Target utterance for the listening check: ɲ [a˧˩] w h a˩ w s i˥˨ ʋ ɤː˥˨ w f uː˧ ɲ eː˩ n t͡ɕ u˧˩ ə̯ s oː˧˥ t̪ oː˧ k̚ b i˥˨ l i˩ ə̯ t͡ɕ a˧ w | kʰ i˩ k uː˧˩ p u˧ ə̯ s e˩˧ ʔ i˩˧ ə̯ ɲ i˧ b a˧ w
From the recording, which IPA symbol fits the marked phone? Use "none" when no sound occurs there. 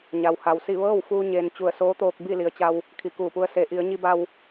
a˩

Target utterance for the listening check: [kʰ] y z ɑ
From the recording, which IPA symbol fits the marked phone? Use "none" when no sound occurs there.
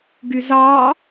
ɡ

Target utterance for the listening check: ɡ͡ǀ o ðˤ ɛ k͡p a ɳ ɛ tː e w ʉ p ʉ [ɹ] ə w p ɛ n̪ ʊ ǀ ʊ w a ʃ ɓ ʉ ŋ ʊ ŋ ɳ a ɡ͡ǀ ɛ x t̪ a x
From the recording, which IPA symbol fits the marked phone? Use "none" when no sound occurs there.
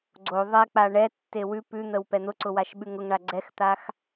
n̪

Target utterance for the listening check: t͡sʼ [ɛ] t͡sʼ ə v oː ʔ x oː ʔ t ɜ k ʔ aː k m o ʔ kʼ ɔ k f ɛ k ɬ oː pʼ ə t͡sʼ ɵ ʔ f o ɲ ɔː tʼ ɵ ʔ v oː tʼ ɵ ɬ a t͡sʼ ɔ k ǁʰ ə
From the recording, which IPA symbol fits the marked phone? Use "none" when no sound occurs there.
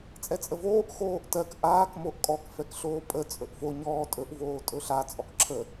ɛ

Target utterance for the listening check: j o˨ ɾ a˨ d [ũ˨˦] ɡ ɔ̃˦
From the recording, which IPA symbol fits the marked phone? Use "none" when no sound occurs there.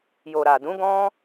ũ˨˦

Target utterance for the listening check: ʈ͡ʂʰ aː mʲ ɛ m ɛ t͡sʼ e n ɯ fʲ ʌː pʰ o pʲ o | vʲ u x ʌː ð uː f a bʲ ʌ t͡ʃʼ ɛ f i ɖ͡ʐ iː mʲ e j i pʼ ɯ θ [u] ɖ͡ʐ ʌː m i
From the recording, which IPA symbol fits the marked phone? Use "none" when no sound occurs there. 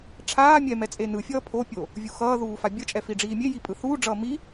uː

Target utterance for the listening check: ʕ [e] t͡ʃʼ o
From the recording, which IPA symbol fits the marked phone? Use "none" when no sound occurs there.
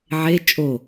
e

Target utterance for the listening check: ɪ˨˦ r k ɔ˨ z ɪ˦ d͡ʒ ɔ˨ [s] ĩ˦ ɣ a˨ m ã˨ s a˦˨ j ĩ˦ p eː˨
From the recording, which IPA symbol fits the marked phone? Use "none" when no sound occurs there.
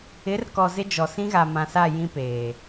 s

